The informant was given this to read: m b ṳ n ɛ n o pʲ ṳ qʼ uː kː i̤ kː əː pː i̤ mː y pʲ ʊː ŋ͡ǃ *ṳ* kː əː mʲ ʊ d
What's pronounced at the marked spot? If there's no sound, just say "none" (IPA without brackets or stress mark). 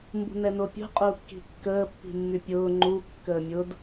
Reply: u